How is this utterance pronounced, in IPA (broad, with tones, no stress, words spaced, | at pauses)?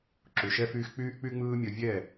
ǁu˨ʃɛ˦fyː˦x k͡pyː˦ʔk͡py˦ŋ͡mɯː˦mʲʌ˧ vʲɛ˦˨